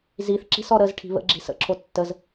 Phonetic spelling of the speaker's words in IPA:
z i θ ǁ i̤ s ɔ ɾ ə z ʈʰ i̤ β ə̰ ɡ͡ǁ i̤ s ə̰ ǁʰ o tː ə z

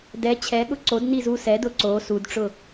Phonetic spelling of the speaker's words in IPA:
d ɛ t͡ɕʰ ɛ ɠ ʊ ǀ o d n i z u s ɛ d ʊ ǀ o s u d ʈ͡ʂ ʊ

